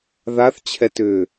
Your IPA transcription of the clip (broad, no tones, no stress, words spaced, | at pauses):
ðaθt͡ɕʰɛtʏː